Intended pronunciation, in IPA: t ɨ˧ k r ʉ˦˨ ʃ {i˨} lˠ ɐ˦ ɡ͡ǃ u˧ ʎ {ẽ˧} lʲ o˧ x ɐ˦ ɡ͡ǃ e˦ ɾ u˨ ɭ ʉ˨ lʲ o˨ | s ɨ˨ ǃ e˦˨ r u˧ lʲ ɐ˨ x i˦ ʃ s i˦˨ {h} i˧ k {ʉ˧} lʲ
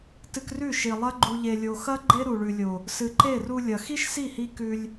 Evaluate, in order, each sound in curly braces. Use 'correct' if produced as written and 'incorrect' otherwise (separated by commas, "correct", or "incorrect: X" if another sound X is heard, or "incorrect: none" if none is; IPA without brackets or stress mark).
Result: correct, incorrect: e˧, correct, correct